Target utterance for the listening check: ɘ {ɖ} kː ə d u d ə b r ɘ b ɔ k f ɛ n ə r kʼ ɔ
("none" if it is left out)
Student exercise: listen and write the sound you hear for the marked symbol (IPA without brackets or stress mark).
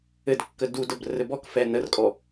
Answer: d